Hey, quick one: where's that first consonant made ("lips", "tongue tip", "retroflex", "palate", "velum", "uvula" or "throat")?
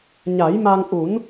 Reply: palate